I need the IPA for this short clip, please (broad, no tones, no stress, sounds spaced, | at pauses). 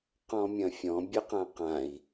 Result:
q ɔ̃ mʲ ɐ̃ fʲ ɔ̃ bʲ ɘ q ã q ã i̯